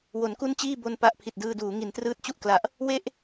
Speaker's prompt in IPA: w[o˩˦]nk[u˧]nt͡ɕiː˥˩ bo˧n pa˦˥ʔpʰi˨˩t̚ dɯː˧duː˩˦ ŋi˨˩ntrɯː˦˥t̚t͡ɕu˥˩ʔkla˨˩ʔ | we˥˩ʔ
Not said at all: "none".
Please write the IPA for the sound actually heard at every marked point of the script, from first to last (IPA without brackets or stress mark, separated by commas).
o˩˦, u˥˩